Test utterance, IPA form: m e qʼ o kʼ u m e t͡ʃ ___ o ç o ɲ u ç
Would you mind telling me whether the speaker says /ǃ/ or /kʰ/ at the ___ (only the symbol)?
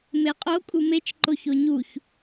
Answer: ǃ